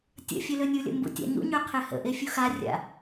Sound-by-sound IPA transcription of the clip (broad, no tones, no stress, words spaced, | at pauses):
tʲə̰ fʲølønʲulʲə̰ mbṵtʲa̰ɲṵɲø qʰehə̰ʔe fʲuxarʲa̰